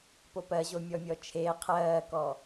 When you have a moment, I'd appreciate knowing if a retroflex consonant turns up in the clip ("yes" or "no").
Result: no